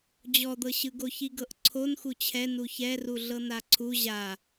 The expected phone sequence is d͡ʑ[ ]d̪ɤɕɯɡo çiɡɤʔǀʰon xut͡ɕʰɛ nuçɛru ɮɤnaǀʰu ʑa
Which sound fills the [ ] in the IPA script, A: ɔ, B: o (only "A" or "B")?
A